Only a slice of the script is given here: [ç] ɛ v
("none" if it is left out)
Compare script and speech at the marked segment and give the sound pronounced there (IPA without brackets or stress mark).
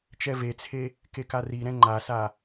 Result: t͡ʃ